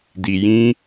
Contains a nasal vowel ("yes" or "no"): yes